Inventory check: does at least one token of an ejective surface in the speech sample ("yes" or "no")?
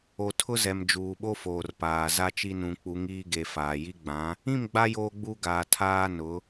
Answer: no